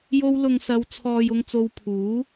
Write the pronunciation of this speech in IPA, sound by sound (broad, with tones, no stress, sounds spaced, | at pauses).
j o˧ w l ʊ˨ ŋ s ɐ˨˧ w t͡sʰ ɔː˨ j ʊ˧ ŋ t͡s o˧ w pʰ uː˨˥